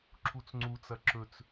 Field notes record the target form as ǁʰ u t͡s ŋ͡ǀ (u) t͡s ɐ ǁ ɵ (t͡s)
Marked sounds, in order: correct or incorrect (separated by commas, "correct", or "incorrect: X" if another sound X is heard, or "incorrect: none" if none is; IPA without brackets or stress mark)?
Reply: correct, correct